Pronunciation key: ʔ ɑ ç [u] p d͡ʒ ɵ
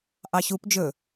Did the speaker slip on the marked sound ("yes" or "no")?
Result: no